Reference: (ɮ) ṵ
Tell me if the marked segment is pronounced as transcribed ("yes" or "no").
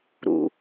no